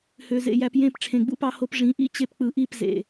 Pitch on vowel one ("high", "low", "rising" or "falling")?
low